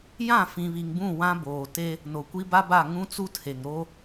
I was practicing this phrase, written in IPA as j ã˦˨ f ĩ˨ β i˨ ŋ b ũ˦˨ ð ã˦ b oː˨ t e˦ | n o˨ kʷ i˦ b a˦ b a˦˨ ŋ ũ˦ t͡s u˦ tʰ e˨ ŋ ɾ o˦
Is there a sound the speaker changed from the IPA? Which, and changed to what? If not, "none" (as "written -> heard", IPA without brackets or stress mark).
ð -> w